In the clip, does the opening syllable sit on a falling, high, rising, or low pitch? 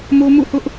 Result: high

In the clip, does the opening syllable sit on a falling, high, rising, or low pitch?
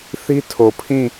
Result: high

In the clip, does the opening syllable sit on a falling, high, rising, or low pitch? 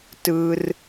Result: high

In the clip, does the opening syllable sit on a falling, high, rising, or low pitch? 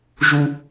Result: high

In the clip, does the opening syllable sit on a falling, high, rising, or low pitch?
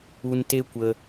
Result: low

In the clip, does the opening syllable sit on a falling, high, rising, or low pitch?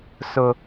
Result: high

